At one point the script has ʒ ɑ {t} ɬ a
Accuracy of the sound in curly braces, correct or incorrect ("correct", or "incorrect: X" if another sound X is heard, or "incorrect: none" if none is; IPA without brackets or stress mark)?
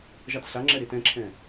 correct